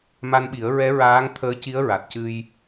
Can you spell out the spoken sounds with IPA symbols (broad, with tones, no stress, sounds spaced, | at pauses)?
m a˧ n ɓ i˨˩˦ ə̯ ɹ ɛ˧˥ ɹ aː˧˥ ŋ t̪ʰ əː˧˥ c i˧˥ ə̯ ɹ a˨˩ t̚ c ɨ˧ j